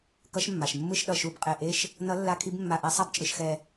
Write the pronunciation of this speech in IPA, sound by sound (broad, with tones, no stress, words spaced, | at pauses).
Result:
kʌ˧˥ʃmːa˩ʃ mːɯ˥˧ʃɗʌ˧˩ʃu˧˩b qʼe˧˩ʔe˥˧ʃ | nʌ˧˥lːa˧˥ kʰi˧˥bmːa˧˩ʔi˧˥ sˤa˥˧bt͡ʃʼɯ˧˩ʃxɛ˧˩